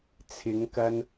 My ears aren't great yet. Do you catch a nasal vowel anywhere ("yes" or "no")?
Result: no